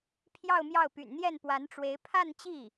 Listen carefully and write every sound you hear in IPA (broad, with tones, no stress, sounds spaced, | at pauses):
pʰ j ɑ˥˧ ʊ̯ m j ɑ˥˩ ʊ̯ p y̰˨˩ n n̪ j ɛ˥˩ n p w a˧˥ n ʈ͡ʂ w e˧˥ ɪ̯ pʰ a˥˧ n t͡ɕ i˥˩